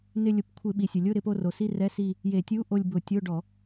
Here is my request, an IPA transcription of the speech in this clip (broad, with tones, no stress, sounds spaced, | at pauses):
n ɪ˦˨ lʲ ʊ˧˩˧ p kʷʰ ɪ˧˩˧ ɓ i˩ sʲ ʊ˩ lʲ ʊ˧˥˧ ɾ ɪ˦˨ p o˦˨ r o˩ s i˧˥˧ r ɛ˧˥˧ s i˦˨ | j e˧˩˧ tʲ u˧˥˧ ʔ o˦˨ lʲ b ʊ˧˩˧ tʲ o˧˥˧ ɖ ɔ˧˩˧